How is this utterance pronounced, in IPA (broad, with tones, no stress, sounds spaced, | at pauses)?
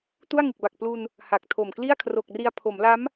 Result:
t u˥˩ a̯ ŋ ɯ˨˩ k̚ b a˨˩ k̚ p l u˧ n | h a˨˩ k̚ tʰ o˨˩ m k l i˥˩ a̯ kʰ r o˨˩ k̚ r i˧ a̯ pʰ o˩˦ m l a˦˥ m